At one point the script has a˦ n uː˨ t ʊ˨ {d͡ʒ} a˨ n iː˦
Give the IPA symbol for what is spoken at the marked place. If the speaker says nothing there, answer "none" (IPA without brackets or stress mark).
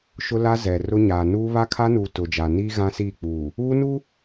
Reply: d͡ʒ